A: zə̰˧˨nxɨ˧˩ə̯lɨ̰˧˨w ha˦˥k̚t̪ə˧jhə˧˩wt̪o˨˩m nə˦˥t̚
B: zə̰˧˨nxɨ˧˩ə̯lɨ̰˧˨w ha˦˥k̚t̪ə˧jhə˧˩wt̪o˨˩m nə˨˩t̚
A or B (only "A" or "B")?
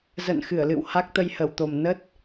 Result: A